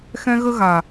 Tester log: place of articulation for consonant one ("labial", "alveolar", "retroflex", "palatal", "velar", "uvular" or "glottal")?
velar